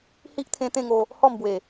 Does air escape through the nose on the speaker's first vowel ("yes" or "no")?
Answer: no